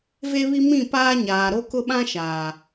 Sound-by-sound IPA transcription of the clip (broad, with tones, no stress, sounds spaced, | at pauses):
v e˦ β i˦ m ĩ˦˨ p aː˦ ɲ aː˨ ɾ o˦ k ʊ˦ ɓ ã˦ ʃ aː˨